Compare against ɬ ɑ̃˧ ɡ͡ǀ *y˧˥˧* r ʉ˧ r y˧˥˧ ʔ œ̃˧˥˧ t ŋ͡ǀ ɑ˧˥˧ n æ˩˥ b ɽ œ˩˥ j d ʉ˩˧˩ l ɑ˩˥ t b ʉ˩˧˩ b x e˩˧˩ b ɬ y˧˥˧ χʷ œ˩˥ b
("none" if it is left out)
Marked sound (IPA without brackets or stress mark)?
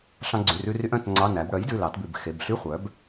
y˩˧˩